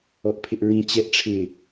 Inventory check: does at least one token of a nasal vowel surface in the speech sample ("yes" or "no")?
yes